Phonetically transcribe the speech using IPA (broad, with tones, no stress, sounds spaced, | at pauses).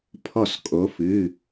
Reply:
pʰ ɔ˧˩ s kʼ o˩˧ f ɨ˩˧˩